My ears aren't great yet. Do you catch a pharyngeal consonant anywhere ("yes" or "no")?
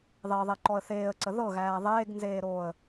no